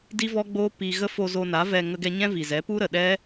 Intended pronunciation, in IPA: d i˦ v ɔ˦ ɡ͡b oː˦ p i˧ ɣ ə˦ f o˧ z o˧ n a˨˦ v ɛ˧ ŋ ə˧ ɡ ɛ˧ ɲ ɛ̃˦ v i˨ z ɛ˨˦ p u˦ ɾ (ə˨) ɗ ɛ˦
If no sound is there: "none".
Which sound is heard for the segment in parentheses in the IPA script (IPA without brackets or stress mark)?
ə˨